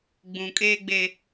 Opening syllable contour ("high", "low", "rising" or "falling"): low